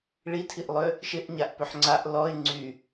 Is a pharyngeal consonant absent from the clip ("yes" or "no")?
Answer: no